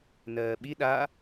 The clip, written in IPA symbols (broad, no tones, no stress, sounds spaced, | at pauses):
n ɜː ɓ i ɗ a